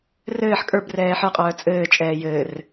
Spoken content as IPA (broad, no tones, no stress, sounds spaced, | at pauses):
r ɘː ħ kʼ ə˞ b r ɛː ħ ə˞ qʼ œː t͡sʼ ɘː t͡ʃʼ ɛː j ɘː r